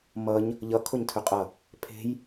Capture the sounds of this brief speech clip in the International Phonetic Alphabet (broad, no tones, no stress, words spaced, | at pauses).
mʌɲ | ʎʌ kʰoɲtʰʏqʼʌ | pʰe̤j